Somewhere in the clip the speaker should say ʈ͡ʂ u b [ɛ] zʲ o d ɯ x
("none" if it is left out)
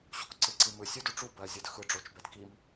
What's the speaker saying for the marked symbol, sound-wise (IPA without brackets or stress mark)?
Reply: ɜ